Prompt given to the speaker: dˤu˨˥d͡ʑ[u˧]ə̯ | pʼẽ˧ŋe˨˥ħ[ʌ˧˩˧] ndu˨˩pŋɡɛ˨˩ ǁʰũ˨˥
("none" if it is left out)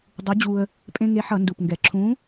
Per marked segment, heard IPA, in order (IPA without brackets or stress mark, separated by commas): u˧, ʌ˧˩˧